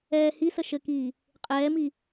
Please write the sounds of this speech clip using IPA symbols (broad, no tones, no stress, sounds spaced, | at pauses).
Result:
ɛː h i s ə ʃ ɘ k iː | qʼ ɛː m i